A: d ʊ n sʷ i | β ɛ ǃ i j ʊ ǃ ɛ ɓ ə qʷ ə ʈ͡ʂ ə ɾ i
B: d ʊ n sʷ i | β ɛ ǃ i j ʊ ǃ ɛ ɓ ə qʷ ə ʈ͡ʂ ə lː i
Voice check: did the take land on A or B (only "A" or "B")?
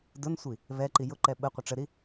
A